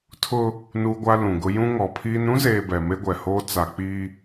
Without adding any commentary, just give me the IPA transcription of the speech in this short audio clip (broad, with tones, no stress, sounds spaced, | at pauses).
tʰ ʊ˦ | n uː˦ ɡʷ a˦ l ũ˨ ɡ ʊ˦ j ũ˦ ŋ ɔ˨ pʰ iː˦ n ɾ ũ˦ z eː˨ b ɛ˨ m e˦ ɡʷ ɛ˨ h oː˦ t͡s a˨ k͡p iː˦